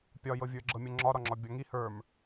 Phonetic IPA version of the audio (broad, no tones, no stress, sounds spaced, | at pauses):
pʲ ɒ j ɤ vʲ ə˞ ɡ͡ǁ ɤ mʲ ɤ ŋ͡ǁ ɒ ɾ ɒ ŋ͡ǁ ɒ bʲ ɔ ŋ i h ə˞ m